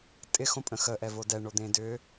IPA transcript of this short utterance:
tʼɪ xõpʼə̃xə ʔɛvodɛ ɳod̪ẽdʏ

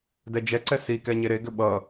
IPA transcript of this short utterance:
dɛd͡ʒɛǀɛ sikɛ ɲeɾeɡʏ ɓʌ

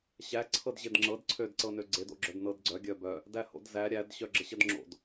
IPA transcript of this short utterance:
ɕæ ǀʰɤdʑedŋ͡ǁɤd ǀʰød ǀɤnøɡ͡ǀed o̰ɡ͡ǁœdnɤdɡ͡ǀœ ɡʲœbœ | dæho̰dzæ ɾʲæd ɕœɡ͡ǁəɕədŋ͡ǁo̰d

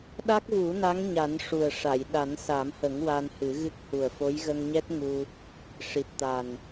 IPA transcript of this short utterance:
ɗa˦˥k̚vu˨˩˦na˧˥ŋ ɲa˨˩˦nʂu˨˩ə̯ʂa˨˩˨j ɗa˨˩˦nsa˨˩˦mhə˨˩˦ŋ wa˧nhɨ˨˩˦ɣɨ˦˥k̚ hu˨˩ə̯fo˧˥jɣə˧ŋɲɛ˦˥t̚ ŋu˧ | ʂi˨˩t̚t̪a˨˩n

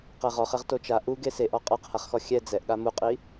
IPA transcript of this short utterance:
qɛʁɔχɛʁ tot͡ʃa ʔu ɡeseʔɔ qʼaqhaχxɔ xʲɛ d͡zɛʔɠa muqʼi

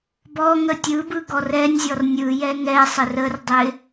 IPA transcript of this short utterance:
bɔ ŋətʲɯbɯ ɡɔrɛnʲzʲɔr nʲɯjɛ ŋɛsˤɪr ərdˤɪ

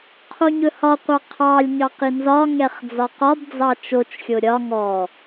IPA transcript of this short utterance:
qʰoɲɵhɒqʷɑ qʰɑlʲɲɑ qinzɒŋɛχ d͡zɒqɒbd͡zɑ t͡ʃot͡ʃxʲo ɾʲɒ ŋɔ

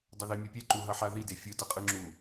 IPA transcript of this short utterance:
dˤoðemʲepʲɛ ǃuɦʌħaði defʲɯ dʌqʼɯŋ͡ǁu

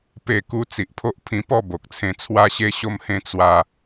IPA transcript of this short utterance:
pe˥˧ku˦ t͡si˨ʔpʰo˦ʔ pʰĩ˧pɔ˥˧ bo˨k̚t͡sʰẽ˧ t͡sʰwa˧ɕe˧ɕo˧mhẽ˧ t͡swa˧

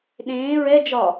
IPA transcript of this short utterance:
ɗẽː ɹɛ d͡ʒɒ

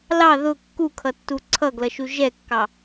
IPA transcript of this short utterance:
lɑ ðʊ kːukʰʌtːu ǀʰʌɡlʌʃu ʒɛkːɑ

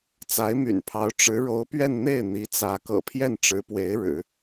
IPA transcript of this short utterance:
t͡sa˧˥ɪ̯my̰˨˩npʰɑ˧˥ʊ̯ ʈ͡ʂɻ̩˧˥ɻo˧˥ʊ̯pɥɛ˥˧n n̪e˥˩ɪ̯n̪i˧˥t͡sä˧˥ kɤ̰˨˩pʰjɛ˥˩nʈ͡ʂɻ̩˧˥pwe˧˥ɪ̯ ɻɻ̩˨˩˦

